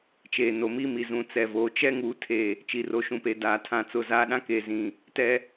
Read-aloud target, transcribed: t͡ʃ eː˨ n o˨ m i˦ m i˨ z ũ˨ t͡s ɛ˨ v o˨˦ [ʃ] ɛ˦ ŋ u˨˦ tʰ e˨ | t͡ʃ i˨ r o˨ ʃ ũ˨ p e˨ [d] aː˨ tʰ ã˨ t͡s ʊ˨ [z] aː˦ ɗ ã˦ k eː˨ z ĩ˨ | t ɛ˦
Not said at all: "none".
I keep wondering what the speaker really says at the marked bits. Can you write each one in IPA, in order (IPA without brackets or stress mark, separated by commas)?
t͡ʃ, d, z